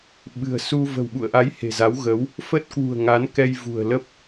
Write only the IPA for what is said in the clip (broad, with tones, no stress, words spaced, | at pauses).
ɓɨ̤˨˩ə̯su˧ və̤˨˩wɓṵ˧˨ə̯ʔa˨˦j he̤˨˩za˨˦wɣə˨˦w | fə˦˥t̚kwṳ˨˩ə̯ŋa˨˦n kɛ˧jvṳ˨˩ə̯lə˦˥p̚